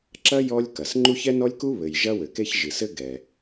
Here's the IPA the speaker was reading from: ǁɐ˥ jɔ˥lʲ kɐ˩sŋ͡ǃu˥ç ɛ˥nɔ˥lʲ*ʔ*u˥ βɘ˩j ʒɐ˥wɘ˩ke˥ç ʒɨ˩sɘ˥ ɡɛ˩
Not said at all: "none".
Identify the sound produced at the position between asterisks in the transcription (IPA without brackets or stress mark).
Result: k